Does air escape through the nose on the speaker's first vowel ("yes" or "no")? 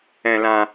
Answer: yes